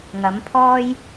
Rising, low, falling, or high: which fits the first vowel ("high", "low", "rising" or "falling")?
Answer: rising